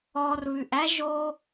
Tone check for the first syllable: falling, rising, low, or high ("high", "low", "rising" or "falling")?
low